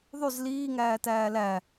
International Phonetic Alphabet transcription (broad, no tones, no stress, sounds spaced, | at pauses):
ðˤ y z l iː ŋ æː t æː l æ